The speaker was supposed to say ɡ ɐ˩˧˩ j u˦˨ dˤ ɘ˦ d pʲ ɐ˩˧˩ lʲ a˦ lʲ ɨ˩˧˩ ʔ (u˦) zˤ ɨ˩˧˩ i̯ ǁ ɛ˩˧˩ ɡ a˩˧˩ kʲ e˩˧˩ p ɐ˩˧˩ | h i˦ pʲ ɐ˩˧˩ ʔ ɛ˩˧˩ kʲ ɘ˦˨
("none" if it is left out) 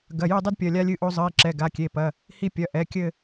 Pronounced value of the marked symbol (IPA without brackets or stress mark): o˦